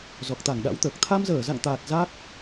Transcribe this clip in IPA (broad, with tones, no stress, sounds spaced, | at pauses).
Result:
z ɔ˨˩ k̚ t̪ a˧˩ ŋ ɗ a̰˧˥ w t̪ əː˨˩ k̚ t̪ʰ a˧ m z əː˧˩ z a̰˧˨ ŋ t̪ aː˨˩ t̚ z a˦˥ k̚